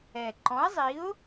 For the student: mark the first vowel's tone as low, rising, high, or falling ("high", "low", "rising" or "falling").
low